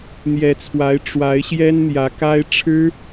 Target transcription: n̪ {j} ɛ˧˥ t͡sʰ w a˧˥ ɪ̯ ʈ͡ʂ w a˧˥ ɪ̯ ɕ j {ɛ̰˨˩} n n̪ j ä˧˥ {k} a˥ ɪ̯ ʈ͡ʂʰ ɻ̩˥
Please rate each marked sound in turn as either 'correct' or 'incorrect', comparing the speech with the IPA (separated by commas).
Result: correct, incorrect, correct